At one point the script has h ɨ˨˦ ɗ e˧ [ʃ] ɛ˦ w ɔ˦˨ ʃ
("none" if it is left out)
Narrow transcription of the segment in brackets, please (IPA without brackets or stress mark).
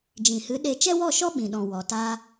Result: t͡ʃ